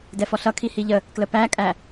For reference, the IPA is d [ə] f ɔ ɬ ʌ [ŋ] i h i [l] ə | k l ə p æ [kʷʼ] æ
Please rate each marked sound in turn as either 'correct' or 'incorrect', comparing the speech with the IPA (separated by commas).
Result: incorrect, incorrect, incorrect, incorrect